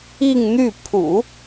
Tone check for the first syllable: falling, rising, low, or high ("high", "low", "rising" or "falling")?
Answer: falling